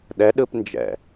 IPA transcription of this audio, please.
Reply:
ɗ ɛ ɗ ɯ p n d͡ʒ ɛ̰

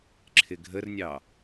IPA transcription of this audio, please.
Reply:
ǁʰ ɪ ɡʱ ə r nʲ ɑ

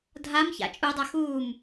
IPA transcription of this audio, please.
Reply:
dʱ a m ç a̰ t͡ʃʼ u dˤ a x uː m

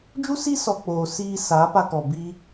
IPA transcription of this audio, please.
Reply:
d͡ʒ u˦ s i˦ s ɔ˨ k͡p oː˨ s iː˧ s aː˨˦ p a˧ k ɔ˨ b i˦

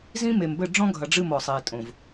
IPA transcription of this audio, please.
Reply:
z ĩ˦ m e˨ m b ɘ˦˨ ɖ͡ʐ ɔ̃˦ ɡʱ ɐ˨ ɖ͡ʐ ɨ˦˨ m ɔ˨ sˤ eː˨ tʼ õ˨ v

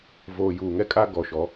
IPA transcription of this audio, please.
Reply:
v oː˨ j uː˨ ŋ ɛ˦ kʼ a˦ ɡ ɔ˨ ʃ ɔ˨˦

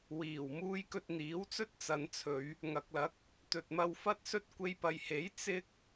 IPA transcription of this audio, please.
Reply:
w iː˨˩ w m uː˧ j k ɵ˧ t̚ n̪ iː˨˥ w t͡s ɵ˥ t̚ t͡s ɐ˨˧ n t͡sʰ ɵ˨˧ ɥ | ŋ ɐ˨ k̚ l ɐ˨˥ k̚ | t̪ ɵ˨ t̚ m ɐ˧ w f ɐ˥ t̚ s ɵ˥ t̚ kʷ e˧ j p ɐ˨ j h e˨˥ j t͡s ɪ˥ k̚

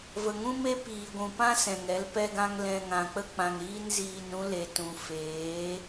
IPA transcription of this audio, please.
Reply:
v ə˨ ŋ ũ˦ m e˦ p iː˨ ɡʷ ũ˨ p ã˦ s ɛ̃˨ ŋ ɛ˨˦ l p ɛ˧ ɡ ã˧ ŋ l ɛ̃˨ ŋ ã˨ k͡p ə˦ k͡p ã˨ ŋ ɾ iː˦ n z iː˨ n ɾ ũ˧ l e˨ t ũ˨ f eː˨˦

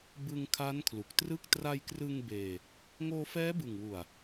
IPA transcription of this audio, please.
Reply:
b ɯ˧ ŋ kʰ a˦˥ n kʰ l u˨˩ k̚ t r ɯ˥˩ k̚ t r a˧ j k r ɯ˧ ŋ b eː˧ | ŋ oː˧ f ɛː˦˥ b ɯ˨˩ ŋ w u˨˩ a̯

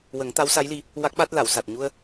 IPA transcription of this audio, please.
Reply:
w ə˨˩˦ ŋ t̪ a˧˥ w s a˧˥ j l i˧ | w a˦˥ k̚ ɓ a˦˥ t̚ l a˨˩˨ w s a˨˩ t̚ ɲ u˧ ə̯

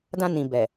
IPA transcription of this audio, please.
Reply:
d ã˧ n ĩ˨ b ɛ˨

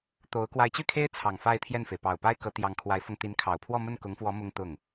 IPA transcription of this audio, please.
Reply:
t̪ o˧˥ ʊ̯ k w a˧˥ ɪ̯ t͡ɕ y˥˩ kʰ e˥ ɪ̯ t͡sʰ ɑ˨˩ ŋ f a˥˧ ɪ̯ t̪ʰ j ɛ˥˩ n f e˩ ɪ̯ p ɑ˨˩ ʊ̯ p a˥ ɪ̯ k ɤ˧˥ t̪ j ɑ˧˥ ŋ kʰ w a˧˥ ɪ̯ f ɤ˧ ŋ t̪ i˧˥ n kʰ ɑ˨˩ ʊ̯ pʰ w ɔ˥˧ m ə˥˩ n k ʊ˧˥ ŋ f w ɔ˧˥ m ʊ˥ ŋ t̪ ʊ˥˩ ŋ

